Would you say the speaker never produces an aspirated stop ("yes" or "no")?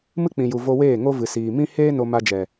yes